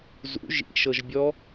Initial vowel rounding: rounded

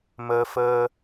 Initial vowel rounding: unrounded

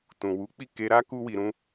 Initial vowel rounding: rounded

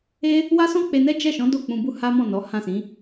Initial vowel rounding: unrounded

